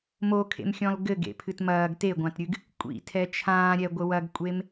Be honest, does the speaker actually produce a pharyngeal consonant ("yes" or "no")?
no